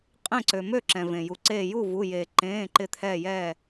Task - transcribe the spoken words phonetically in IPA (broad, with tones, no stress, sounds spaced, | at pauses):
qʼ ẽ˥˩ ǀ ø˩ m ø˥˩ ǁ ɛ̃˩ v ẽ˩ j u˩ ǀ eː˧˩ j u˥˩ v u˩˧˩ j eː˩ ǃ ẽː˩˧˩ ǃ ɪ˧˩ t̪ʰ ɛː˧˩ j ɛː˧˩